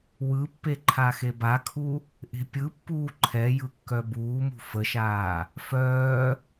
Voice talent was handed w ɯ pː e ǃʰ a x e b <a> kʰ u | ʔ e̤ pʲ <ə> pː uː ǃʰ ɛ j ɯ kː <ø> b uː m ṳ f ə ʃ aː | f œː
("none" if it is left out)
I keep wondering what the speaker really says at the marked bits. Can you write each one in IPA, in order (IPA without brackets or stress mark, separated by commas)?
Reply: a, ɯ, œ